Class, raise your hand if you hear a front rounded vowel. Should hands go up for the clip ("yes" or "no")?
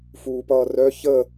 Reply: yes